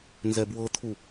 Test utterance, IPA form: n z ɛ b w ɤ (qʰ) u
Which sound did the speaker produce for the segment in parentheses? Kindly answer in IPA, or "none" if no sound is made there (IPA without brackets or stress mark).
t̪ʰ